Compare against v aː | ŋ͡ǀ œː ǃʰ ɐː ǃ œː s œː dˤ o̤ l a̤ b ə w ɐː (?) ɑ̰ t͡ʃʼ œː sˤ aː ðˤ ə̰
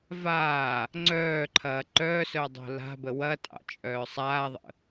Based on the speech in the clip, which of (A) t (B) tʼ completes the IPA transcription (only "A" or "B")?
B